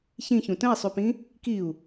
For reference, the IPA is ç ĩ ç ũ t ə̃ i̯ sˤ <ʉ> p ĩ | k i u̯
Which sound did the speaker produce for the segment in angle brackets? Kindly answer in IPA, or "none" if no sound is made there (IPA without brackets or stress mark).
ʉ